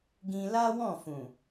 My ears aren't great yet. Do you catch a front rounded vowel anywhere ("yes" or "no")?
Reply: no